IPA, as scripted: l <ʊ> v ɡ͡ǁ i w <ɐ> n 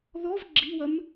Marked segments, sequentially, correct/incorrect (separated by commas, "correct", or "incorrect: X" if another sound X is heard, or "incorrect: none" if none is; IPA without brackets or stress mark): incorrect: ɔ, correct